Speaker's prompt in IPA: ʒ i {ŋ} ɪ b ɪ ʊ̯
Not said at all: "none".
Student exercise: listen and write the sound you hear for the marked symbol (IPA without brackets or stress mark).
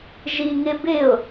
ŋ